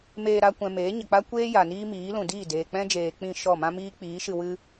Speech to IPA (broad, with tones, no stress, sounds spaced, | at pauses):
m eː˧ ɾ a˧ kʷ ɛ̃˨ m eː˨˦ ɲ ə˨ k͡p a˦ kʷ eː˦ j a˨ n iː˦ m iː˨˦ l ũ˨ d iː˦˨ d eː˨ k͡p ɛ̃˦ d͡ʒ eː˨ k͡p ĩ˦˨ ʃ ɔ˦˨ m ã˦ m iː˦ k͡p iː˨˦ ʃ ɨ˧ w ɨ˦